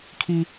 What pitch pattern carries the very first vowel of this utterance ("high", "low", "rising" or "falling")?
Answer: high